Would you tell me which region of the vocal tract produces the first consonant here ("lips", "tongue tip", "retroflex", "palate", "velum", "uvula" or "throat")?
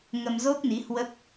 velum